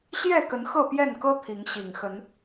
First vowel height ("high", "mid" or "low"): mid